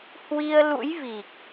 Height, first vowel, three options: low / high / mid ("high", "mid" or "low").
high